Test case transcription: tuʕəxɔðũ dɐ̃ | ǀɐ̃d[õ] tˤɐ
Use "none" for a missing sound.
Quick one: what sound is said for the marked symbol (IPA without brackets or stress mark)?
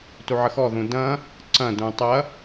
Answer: ũ